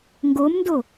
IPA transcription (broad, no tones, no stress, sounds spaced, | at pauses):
ŋ ɡ o m n d o